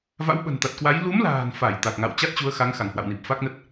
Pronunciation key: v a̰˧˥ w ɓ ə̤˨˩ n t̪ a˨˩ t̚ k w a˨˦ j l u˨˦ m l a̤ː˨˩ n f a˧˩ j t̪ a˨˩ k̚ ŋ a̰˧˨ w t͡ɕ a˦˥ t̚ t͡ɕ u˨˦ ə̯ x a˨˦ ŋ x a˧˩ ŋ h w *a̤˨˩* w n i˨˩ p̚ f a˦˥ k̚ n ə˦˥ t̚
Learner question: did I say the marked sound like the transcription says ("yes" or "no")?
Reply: no